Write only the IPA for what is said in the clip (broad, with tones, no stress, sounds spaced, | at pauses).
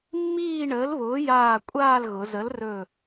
mː iː˥˧ ɳ əː˨˥ l β ʊː˨˥ j aː˧˩ kʷʼ aː˥˧ l ɣ ʊ˩˧ z ə˨˥ l r ɵ˧˩